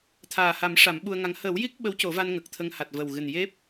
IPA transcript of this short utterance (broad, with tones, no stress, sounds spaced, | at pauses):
t̪ʰ aː˨˩ h a˨˩˦ m ʂ a˨˩˦ m ɓ u˧ ə̯ ŋ a˧˥ ŋ h əː˨˩˦ w j i˦˥ k̚ ɓ ə˧˥ w c o˨˩˦ v a˧ n ŋ ə˨˩ k̚ t̪ʰ ə˧ ŋ h a˨˩ t̚ v ə˨˩ w ɣ ɨ˨˩ n j e˦˥ p̚